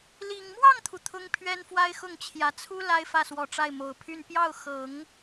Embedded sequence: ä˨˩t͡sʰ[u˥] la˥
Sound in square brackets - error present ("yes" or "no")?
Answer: no